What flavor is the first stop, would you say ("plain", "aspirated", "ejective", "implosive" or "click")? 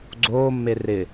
click